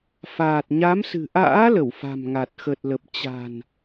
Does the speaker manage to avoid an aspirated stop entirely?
yes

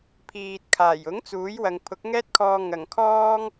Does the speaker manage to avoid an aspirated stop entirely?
no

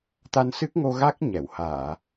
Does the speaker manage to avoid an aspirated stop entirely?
yes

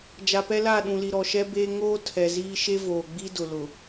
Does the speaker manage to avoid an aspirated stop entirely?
no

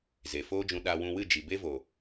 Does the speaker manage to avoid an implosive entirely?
no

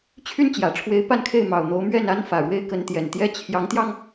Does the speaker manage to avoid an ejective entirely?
yes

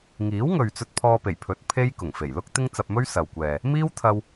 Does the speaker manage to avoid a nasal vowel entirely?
yes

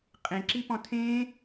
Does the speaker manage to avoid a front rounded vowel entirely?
yes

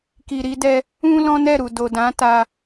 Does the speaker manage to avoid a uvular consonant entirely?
yes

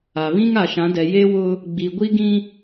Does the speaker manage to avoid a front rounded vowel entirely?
yes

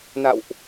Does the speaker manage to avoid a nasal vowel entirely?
yes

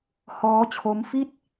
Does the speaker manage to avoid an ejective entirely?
yes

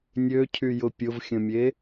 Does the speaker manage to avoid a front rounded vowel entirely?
no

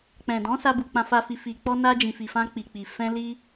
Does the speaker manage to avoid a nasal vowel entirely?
no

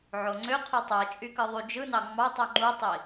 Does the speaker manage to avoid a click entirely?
no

